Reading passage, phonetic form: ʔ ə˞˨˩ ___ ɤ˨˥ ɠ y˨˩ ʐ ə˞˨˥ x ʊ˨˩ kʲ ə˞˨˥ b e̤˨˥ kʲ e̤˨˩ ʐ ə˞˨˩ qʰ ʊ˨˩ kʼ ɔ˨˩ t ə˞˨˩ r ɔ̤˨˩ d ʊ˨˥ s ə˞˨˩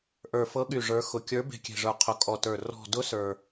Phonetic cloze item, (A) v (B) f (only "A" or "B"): B